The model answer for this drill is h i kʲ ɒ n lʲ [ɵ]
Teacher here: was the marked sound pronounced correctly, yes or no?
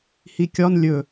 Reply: yes